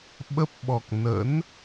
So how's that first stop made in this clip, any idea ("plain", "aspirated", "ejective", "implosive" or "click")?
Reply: implosive